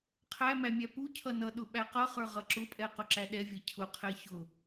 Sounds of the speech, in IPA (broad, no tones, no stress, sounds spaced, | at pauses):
qʰ æ m æ mʲ æ p u cʰ ʌ n ʌ ɗ ʊ ɓ æ q ʌ χ ə˞ ʁ ʌ ǁ ʊ pʼ ɛ q ʊ ǁ æ ɗ ɛ vʲ ɛ cʰ ʊ qʰ ɛ ç ʊ